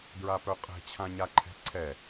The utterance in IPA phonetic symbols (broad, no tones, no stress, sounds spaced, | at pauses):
d ɹ a p œ qʼ ɛ̤ t͡ɕʰ ã ɲ a ǃʰ ɛ̤ ǀʰ ɛ